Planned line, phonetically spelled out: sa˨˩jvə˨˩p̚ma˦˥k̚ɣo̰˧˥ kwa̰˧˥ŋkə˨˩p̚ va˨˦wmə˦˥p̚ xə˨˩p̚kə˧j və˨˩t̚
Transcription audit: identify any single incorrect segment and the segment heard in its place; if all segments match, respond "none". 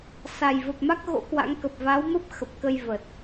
none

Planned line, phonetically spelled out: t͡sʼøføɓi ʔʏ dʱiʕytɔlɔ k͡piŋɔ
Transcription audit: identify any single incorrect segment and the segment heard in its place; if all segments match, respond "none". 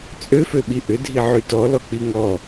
none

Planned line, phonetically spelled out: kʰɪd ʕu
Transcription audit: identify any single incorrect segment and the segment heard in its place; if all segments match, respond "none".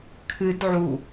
ɪ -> ɨ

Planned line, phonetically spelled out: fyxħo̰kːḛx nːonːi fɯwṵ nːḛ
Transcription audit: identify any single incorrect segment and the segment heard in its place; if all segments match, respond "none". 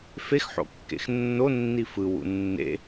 y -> e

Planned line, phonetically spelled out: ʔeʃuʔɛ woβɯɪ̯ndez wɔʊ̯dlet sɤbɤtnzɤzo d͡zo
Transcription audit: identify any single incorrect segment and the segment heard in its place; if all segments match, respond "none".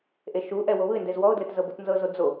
s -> z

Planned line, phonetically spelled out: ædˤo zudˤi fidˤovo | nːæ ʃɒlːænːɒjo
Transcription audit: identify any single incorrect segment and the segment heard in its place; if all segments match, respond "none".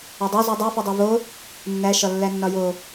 none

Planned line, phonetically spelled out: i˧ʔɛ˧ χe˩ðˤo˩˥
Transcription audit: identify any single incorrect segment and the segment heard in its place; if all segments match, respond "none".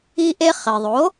ɛ˧ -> e˧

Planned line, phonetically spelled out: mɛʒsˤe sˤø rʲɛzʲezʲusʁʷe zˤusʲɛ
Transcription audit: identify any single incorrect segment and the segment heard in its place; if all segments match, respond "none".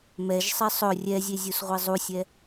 ø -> ɵ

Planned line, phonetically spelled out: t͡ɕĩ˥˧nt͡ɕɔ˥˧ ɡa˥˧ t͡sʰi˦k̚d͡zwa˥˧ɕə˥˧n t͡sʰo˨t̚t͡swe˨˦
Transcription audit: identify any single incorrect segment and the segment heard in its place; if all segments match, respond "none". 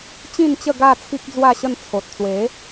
ɔ˥˧ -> ə˥˧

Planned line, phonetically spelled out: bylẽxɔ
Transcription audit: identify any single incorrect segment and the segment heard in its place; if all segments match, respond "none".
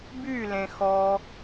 none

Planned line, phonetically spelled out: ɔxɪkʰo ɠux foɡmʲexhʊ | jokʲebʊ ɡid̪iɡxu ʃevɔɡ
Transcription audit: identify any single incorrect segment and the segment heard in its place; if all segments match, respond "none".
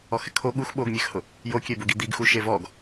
f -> ɓ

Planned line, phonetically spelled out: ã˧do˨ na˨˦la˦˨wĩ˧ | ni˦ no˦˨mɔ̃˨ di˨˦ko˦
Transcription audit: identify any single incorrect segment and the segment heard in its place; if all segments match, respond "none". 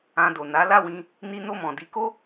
none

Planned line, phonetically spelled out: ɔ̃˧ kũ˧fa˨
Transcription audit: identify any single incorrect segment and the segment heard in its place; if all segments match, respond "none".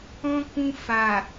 none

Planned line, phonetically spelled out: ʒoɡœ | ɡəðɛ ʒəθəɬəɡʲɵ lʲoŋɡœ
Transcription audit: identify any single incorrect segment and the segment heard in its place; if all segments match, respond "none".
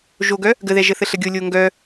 ɵ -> o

